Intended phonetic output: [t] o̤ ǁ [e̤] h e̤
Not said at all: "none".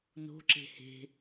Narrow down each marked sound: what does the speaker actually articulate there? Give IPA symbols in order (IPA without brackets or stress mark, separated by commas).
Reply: n, e̤